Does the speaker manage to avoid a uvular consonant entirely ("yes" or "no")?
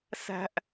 yes